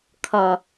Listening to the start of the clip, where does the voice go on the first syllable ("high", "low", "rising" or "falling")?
low